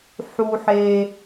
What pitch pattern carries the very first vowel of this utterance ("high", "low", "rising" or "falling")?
high